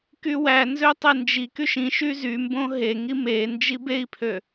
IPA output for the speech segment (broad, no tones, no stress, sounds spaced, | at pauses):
k y w æ n z ø tˤ e n d͡ʒ i k y ʃ ĩ ʃ y z y m b õ ɦ e ŋ i m e n d͡ʒ i b e i̯ pʰ ø